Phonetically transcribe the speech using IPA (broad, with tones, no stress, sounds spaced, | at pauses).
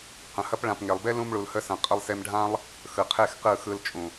q ə̃˨ h ɐ˦ p ɭ ã˨ p ŋ e˨ lˠ b e˦ l ũ˧ m ɭ u˨ l h ə˧ s ɐ̃˨ qʼ ə˧ lˠ s e˧ m ɖʱ ã˦ lˠ | x ɯ˨ qʰ e˦˨ x q ɯ˦˨ x ɯ˧ l t͡ʃʼ ũ˨